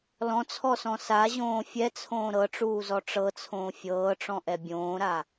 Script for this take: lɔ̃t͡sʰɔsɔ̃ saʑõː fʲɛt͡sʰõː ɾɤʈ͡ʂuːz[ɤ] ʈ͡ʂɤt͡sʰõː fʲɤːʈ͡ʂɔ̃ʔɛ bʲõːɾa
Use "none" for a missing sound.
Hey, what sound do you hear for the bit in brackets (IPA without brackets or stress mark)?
ɔ